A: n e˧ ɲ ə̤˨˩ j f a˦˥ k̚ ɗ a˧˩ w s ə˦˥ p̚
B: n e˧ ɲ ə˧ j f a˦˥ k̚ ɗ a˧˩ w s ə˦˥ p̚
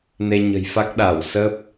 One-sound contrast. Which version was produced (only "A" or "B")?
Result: A